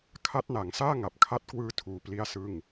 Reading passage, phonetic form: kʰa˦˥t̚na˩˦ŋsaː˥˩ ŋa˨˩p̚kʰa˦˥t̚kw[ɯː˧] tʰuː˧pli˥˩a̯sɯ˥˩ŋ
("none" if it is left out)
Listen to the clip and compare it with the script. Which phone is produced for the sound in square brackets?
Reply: ɯː˧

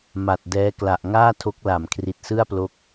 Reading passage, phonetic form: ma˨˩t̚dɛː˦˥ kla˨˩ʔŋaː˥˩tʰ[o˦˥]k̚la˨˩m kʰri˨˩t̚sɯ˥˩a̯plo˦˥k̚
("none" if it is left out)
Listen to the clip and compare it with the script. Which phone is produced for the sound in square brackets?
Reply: o˦˥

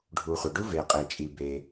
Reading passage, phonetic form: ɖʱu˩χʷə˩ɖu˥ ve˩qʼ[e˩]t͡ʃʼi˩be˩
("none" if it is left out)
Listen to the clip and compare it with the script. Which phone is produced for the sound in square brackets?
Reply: e˩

